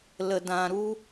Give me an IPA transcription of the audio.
l ə˨ d ã˨ ɾ u˦

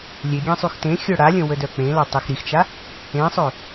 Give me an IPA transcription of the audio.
lʲ e ɡʲ ẽ sˤ y x t ẽ xʲ œ ɽ a lʲ ə̃ w ə d œ k͡p ẽ l ɔ tˤ i x ɾ i x t͡ʃ a | ẽ sˤ ø

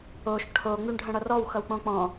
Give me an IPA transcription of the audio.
o ʃ ʈʰ o ŋ͡m y ɳ ɖʱ ə̃ ɽ ʌ r ɔ w x ʌ w k͡p õ k͡p ɔ̃

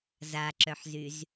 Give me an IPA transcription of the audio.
z a ǁ œ ħ z y z

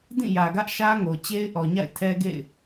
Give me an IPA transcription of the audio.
d ĩ˦˨ j ä˨ ɡ ä˦ ʔ ʃ ä˦ ŋ o˨ t͡ɕ e˦ ɪ̯ ʔ ɔ˨ ɲ a̰˦˨ ɪ̯ tʰ ɛ˦ ɡ ḛ˦˨ ɪ̯

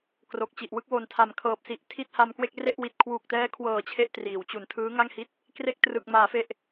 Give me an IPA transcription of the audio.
k r o˨˩ k̚ t͡ɕ i˨˩ ʔ w ɯ˥˩ k̚ w o˨˩ n tʰ a˨˩ m kʰ ɤː˨˩ p̚ s i˨˩ ʔ tʰ i˥˩ t̚ h a˧ m k w e˥˩ k̚ r e˥˩ ʔ w i˨˩ t̚ kʰ w uː˨˩ k̚ t ɛː˦˥ kʰ w ɤː˨˩ t͡ɕʰ e˥˩ ʔ t r iː˩˦ w t͡ɕ u˨˩ n tʰ ɯː˦˥ ŋ a˥˩ ŋ h i˥˩ t̚ | k r e˥˩ k̚ t r ɯ˨˩ k̚ m aː˩˦ f e˨˩ ʔ

